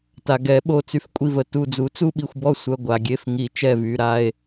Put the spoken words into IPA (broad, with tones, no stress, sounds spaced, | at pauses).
t a˩ ɡ ɛ˨˩˦ ɓ o˩˧˩ t͡s y˧˩ f kʷʼ i˧˩ v ə˩˧˩ t u˧˩ d͡z u˨˥ t͡s u˥˨ ɓ i˧˩ xʷ b ɔ˥˨ sʷ œ˩˧˩ ɡʷ a˩ ɡʲ e˧˩ f ŋ i˨˩˦ t͡ʃ ɛ˧˩ v y˩˧˩ ɾ a˥˨ e̯